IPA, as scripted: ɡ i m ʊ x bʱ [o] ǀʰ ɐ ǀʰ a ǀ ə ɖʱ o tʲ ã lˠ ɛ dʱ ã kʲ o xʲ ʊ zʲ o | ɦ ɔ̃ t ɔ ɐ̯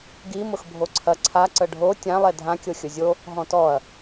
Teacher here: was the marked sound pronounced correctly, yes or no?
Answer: yes